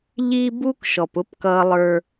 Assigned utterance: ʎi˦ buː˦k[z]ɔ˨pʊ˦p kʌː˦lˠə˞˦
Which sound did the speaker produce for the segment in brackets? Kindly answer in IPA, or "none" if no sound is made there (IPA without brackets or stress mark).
ʃ